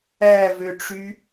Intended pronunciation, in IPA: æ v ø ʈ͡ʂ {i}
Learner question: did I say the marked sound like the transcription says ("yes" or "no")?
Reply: no